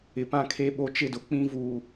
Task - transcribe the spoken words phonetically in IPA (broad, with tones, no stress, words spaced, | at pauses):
ɪ˨pã˦kʰe˦ ɓo˦t͡ʃɪ˦dʊ˨ k͡pĩ˦vu˨